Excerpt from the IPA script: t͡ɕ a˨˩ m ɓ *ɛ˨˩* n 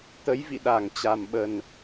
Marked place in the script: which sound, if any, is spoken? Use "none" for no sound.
ə˨˩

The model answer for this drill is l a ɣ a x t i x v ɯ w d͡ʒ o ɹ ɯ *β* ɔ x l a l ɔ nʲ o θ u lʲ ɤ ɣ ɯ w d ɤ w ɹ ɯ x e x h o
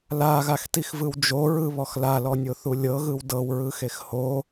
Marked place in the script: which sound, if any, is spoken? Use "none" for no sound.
β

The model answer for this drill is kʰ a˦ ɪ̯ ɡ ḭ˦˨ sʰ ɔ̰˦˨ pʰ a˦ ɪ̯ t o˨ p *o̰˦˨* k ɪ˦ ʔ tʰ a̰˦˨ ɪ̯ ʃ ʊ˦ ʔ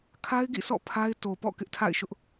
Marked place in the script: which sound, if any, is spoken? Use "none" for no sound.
ɔ̰˦˨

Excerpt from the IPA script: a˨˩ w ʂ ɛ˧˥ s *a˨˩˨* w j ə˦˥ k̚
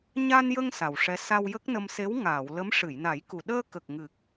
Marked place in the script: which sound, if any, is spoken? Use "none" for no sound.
a˧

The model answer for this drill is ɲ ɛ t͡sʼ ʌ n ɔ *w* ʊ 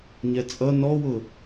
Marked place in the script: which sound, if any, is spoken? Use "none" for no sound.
w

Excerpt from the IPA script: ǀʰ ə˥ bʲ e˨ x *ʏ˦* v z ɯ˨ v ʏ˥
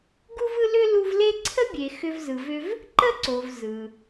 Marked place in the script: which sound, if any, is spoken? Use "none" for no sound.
ʏ˦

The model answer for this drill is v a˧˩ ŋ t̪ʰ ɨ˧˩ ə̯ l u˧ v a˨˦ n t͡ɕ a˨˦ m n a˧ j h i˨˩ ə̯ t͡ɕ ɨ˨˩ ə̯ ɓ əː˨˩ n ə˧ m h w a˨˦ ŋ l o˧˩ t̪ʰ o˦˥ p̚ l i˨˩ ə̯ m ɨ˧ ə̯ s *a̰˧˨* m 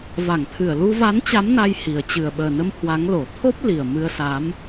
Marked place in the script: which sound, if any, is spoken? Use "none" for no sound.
a˨˦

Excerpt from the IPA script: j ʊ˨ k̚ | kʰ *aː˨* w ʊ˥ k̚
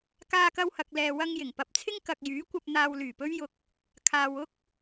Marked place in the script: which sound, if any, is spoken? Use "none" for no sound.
aː˨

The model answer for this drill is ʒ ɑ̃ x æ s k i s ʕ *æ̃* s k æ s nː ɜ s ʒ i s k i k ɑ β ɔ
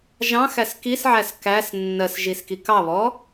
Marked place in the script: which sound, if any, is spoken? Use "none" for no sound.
æ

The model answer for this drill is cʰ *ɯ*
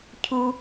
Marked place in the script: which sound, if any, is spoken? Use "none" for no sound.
u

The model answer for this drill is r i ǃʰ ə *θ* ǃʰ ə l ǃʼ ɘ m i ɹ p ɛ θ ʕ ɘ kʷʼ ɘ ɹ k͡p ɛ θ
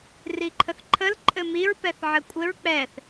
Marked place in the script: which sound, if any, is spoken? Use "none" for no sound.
θ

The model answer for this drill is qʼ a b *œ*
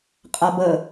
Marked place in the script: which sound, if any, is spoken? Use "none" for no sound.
ə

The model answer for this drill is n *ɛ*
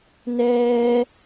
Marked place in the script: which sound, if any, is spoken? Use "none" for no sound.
ɛː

